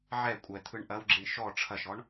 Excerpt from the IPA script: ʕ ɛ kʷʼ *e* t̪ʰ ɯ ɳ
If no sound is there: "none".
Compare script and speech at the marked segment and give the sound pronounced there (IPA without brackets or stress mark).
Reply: ɛ